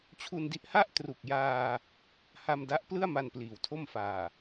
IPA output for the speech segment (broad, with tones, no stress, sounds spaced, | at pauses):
t͡ɕʰ u˧ n d i˦˥ ʔ h a˥˩ ʔ t r u˨˩ k̚ j aː˧ | h a˧ m d a˦˥ ʔ p l ɯ˥˩ a̯ m a˧ n p l iː˩˦ w tʰ o˥˩ m f aː˨˩